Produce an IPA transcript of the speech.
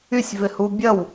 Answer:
ysʲvɪhu bʲɐw

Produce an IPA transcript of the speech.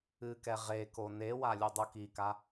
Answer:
ɨkɛ ʁeko newa lʲudˤukika

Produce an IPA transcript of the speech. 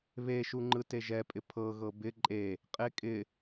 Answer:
βeʃuŋ͡ǃɯ teʒɛpʼɪ pʰɤɣɤ bɪ ǃʼe | qʼekʼɪ

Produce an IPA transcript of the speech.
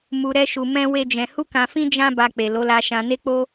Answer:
mu˧ɾɛ˦ʃu˧ mɛ̃˦ we˦d͡ʒɛ̃˧ hu˦kã˧ fĩ˦ d͡ʒã˦ba˧ k͡pe˨lo˨˦la˧ ʃã˧ne˦k͡po˦

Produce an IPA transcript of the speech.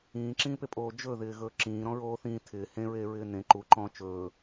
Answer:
ĩːǁĩːpepʼoː d͡ʒɵðɪːɣɵː ǁĩːɾɔ̃ɹoː θĩː tʰɪː hẽɹeːɹɪː nẽ ǃuǃɔ̃ː t͡ʃɵː

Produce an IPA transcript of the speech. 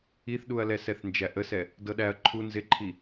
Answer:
iθɗuɐ̯lɛ sɛθnd͡ʒæʔəsɛ | dɤɗæɐ̯ ǃʰu nzɪǃʰi

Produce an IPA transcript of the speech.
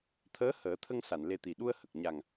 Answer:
t̪ʰəː˧˥həː˨˩˦t̪ʰə˧ŋ sa˨˩˨nle˧t̪i˨˩ ɗu˧ə̯hə˨˩k̚ ɲa˨˩ŋ

